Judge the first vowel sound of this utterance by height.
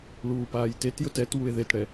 high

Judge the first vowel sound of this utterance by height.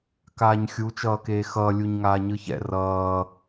low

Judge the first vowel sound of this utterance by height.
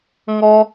mid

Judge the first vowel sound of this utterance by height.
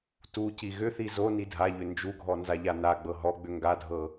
high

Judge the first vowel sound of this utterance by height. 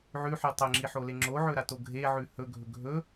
high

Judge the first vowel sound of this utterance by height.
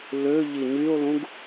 mid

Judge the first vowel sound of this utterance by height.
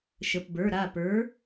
mid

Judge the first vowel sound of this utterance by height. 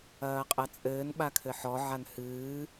low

